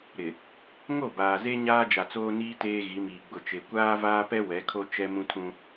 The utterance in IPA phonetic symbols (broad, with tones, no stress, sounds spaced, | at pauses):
ɾ ɪ˨ | ŋ o˦˨ b aː˨ z e˦ ɲ aː˦ d͡ʒ a˨ t͡s oː˦ n iː˦ t eː˦ ɣ i˨˦ m iː˨ ɡ͡b ʊ˨ t͡ʃ e˨ kʷ aː˦ v aː˦ p ɛ˦ w ɛ˨˦ kʰ o˦ t͡ʃ ɛ˦ m ũ˦ tʰ ũ˦